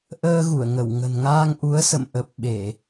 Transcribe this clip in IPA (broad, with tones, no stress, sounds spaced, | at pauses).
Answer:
ʔ əː˧ ɣ u˧˩ ə̯ ŋ ə˧˩ w ŋ ə̤˨˩ n ŋ aː˧ ŋ ʔ u˨˦ ə̯ s ə̰˧˨ m ʔ ə˨˩ p̚ ɓ e˧˩˨